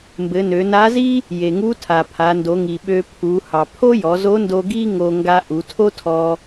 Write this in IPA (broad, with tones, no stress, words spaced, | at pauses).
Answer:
mbɘ˩˧nø˩˧na˧˥zi˥ | je˩ŋu˧˥tʰa˩ pʰa˩˧ndo˩˧ŋi˩ ɓø˧pʰu˩˧hɑ˩ pʰo˥jɔ˩˧zo˧˥ndo˧ ɡi˥ ŋo˧ ŋɡa˧ʔu˩˧tʰo˥tʰɔ˧